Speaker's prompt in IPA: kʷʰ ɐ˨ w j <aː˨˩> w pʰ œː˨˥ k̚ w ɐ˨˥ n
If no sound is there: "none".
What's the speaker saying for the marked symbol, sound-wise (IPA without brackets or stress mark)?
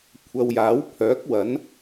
aː˨˥